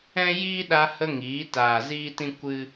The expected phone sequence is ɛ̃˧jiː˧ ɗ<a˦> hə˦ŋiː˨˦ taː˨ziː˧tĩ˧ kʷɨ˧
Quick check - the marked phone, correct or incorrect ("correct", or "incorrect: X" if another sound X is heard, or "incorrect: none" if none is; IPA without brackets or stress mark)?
correct